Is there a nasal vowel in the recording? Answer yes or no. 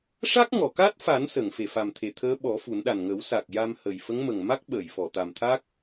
no